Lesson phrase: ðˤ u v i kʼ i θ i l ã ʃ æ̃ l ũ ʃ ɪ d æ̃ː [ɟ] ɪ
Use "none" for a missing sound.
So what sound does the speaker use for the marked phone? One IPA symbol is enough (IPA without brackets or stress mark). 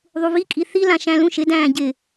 ɟ